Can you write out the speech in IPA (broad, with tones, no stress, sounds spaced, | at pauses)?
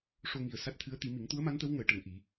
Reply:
ʂ o˧ ŋ i˨˩ ə̯ s a˦˥ t̚ t̪ʰ ɨ˧˥ ə̯ t̪ i˨˩˦ m i˨˩˦ ŋ t̪ u˧˥ ə̯ m a˧˥ n t̪ ə˧˥ w ŋ əː˨˩˦ ʈ ə˨˩˨ ŋ ʔ i˨˩˦